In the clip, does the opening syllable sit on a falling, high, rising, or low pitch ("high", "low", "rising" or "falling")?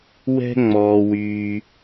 high